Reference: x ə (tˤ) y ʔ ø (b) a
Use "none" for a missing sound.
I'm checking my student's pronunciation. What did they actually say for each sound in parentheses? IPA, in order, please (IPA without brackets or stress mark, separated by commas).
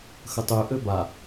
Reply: tˤ, b